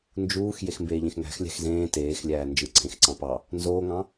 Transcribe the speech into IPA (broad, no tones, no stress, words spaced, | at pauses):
nd͡ʒuːx jexmbeːʎẽxŋæ̤x lʲæ̤xzẽː teːxlʲæː nd͡ʒɯǀʰẽx ǀɑ̃pɑ | nzoːŋɑ̃